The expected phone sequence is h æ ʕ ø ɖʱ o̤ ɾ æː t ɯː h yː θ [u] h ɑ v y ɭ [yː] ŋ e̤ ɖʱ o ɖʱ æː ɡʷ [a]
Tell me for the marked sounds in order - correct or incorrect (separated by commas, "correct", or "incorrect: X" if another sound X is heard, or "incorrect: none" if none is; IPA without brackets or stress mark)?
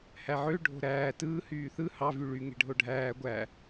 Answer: incorrect: ɯ, incorrect: y, incorrect: æ